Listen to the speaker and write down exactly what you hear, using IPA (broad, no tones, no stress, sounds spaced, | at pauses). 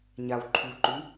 ɲ a w ǃʰ u ǃ ʉ